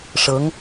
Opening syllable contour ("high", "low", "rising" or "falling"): rising